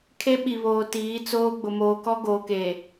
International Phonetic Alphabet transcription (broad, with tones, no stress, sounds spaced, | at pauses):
kʰ e˦ ɓ i˨ β oː˨ t iː˨˦ t͡s oː˦ ɡ͡b ʊ˨ m oː˨ k ɔ˦ ɡ oː˨ k e˨